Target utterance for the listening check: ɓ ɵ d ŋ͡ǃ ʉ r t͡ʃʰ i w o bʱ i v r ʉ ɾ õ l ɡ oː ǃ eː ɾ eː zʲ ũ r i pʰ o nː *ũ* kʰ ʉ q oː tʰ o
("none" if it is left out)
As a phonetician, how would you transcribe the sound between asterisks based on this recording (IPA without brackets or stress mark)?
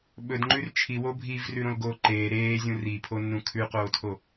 ũ